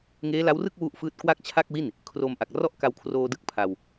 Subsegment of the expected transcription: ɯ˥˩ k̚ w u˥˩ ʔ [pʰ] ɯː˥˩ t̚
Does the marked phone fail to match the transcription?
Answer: yes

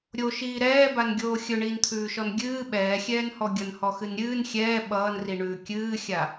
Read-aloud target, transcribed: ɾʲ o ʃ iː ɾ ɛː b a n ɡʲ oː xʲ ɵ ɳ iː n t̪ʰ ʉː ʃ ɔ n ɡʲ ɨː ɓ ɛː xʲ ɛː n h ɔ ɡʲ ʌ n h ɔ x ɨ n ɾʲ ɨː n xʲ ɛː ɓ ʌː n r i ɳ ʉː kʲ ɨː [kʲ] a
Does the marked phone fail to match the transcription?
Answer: yes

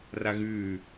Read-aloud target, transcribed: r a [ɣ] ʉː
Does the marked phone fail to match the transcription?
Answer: no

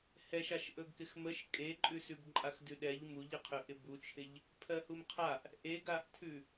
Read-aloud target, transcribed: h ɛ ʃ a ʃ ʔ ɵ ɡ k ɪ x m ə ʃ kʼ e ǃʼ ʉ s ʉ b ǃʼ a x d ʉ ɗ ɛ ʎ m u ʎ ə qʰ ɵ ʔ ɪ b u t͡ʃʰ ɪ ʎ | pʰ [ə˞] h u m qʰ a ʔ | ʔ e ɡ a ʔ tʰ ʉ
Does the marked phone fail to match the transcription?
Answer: yes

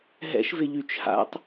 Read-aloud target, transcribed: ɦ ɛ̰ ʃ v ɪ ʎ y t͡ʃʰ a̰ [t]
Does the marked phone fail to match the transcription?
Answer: yes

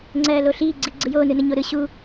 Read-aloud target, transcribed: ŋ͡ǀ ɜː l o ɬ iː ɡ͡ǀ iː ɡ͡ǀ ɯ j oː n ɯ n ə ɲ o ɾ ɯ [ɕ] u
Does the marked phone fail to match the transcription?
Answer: no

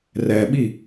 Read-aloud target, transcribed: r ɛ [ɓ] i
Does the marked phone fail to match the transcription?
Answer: no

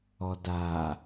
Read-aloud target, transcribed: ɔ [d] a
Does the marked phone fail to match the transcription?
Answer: no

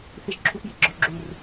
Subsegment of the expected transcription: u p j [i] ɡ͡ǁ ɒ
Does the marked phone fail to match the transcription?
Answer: no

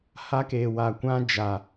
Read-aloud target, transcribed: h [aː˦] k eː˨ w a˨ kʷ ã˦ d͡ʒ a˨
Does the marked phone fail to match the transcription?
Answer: yes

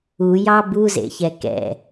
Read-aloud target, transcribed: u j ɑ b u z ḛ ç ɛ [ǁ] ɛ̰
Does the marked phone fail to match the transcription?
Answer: yes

